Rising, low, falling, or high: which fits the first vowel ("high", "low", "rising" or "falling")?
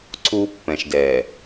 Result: high